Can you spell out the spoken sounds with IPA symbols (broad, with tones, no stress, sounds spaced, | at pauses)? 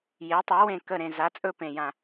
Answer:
j e˨˥ tˤ e˨˥ w ẽ˦˨ k ə˦˨ ɾ ẽ˦˨ z a˨˥ t͡sʼ ɵ˦˨ p ẽ˦˨ j ã˦˨